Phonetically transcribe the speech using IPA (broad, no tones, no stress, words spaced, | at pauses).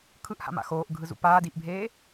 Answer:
kʰɯʔha̰ma̰ xoːʔɡʱɯzṵ paːd iʔbʱeː